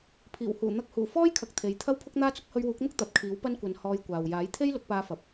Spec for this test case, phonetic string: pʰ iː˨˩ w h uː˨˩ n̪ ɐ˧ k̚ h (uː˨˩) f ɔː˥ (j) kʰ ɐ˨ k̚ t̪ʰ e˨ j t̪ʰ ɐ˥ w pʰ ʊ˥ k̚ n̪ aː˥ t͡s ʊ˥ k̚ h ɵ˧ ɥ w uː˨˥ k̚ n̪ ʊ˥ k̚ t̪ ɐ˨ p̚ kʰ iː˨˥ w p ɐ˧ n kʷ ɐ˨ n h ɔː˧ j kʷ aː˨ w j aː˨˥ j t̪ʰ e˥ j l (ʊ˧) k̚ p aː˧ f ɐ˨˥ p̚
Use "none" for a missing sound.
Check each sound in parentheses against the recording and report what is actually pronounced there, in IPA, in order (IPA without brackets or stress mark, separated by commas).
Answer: uː˨˩, j, ʊ˨˥